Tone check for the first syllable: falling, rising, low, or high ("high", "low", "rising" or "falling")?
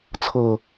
low